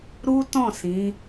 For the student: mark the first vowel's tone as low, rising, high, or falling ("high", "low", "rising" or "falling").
high